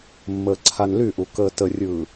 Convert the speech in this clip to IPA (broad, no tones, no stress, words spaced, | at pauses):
mːəːǀʰanlyʔu kəːtərʲɯː